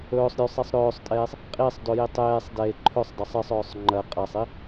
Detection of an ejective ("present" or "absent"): present